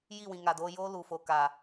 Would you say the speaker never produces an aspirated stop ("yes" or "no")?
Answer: yes